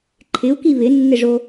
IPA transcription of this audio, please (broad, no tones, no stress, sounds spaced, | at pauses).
ǃʰ ɪ u̯ k i β ɪ nː ɪ ʐ o